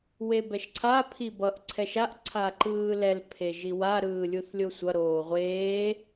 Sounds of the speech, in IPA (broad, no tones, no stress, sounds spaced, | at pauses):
w e b ɛ ʃ ǀʰ a pʰ i b ʌ ʔ ǀʰ ɛ ʃ a ʔ ǀʰ a ǃ ɯː l ɛ l pʰ e ʒ i w a ɾ ɯː lʲ u θ lʲ o sʷ ʌ ɾ oː ʁʷ eː